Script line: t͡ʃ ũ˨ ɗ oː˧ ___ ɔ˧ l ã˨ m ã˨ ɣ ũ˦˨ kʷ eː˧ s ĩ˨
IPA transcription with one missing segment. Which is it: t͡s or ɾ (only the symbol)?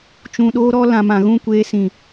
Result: ɾ